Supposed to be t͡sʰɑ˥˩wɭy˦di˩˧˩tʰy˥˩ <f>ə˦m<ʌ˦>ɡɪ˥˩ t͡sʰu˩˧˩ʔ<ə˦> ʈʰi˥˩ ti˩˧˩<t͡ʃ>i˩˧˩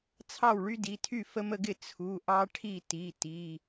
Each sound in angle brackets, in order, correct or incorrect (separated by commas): correct, incorrect, incorrect, incorrect